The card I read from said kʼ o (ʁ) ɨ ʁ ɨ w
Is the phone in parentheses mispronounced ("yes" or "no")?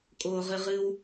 no